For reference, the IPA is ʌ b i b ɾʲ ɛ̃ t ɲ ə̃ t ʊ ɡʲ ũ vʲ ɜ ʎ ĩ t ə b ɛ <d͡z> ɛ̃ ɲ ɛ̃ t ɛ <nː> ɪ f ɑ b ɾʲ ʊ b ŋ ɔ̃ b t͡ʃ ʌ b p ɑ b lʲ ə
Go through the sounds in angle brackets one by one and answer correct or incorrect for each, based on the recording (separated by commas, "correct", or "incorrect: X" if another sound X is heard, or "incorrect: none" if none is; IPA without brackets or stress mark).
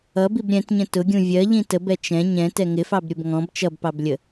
incorrect: t͡ʃ, incorrect: ŋ